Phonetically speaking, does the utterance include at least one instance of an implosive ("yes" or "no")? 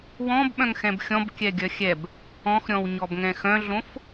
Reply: yes